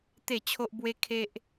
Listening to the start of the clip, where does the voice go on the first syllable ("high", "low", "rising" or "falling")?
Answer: falling